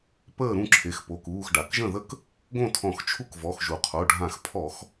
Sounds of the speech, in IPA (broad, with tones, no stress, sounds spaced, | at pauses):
p əː˥˩ ɾ ũ˥˩ ǁʰ e˩˧˩ x p o˩˧˩ k uː˩˧˩ x ɖ a˩ k ʒ ə̃˥˩ ð ə˥˩ k | ɡ õ˥˩ tʰ ɔ̃˧˩˧ x t͡ʃʰ u˥˩ k v ɔ˩˧˩ x ʒ u˩ qʰ o˩˧˩ ɖʱ ã˧˩˧ x pʰ ɔ˧˩˧ x